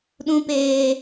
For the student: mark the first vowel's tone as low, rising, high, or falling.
high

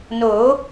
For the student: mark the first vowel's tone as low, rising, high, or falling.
rising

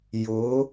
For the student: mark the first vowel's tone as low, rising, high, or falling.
rising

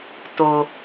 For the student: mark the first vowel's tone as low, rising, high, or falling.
low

